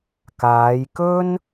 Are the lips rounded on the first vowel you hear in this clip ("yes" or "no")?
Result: no